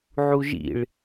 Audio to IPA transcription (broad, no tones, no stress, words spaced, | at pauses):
ʕuʒḭɭ